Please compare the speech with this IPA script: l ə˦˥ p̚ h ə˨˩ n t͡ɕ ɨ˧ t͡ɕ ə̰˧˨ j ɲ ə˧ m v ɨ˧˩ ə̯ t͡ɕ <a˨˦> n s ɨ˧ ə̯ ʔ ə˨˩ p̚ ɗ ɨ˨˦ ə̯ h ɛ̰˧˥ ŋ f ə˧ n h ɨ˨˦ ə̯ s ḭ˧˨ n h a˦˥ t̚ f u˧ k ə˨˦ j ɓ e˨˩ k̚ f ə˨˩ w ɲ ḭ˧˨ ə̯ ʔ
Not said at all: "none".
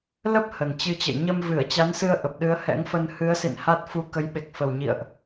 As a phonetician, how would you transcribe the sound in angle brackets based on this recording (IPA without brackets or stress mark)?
a˨˦